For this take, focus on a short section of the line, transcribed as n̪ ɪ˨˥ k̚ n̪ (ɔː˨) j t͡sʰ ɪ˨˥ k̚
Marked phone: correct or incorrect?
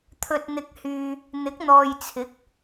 correct